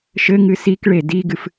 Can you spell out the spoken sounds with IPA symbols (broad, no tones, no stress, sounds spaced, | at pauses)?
ʃ ɘ ŋ ɨ s i k ɭ e d i ɡ ɨ f